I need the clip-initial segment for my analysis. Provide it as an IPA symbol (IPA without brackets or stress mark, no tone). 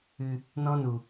ɨ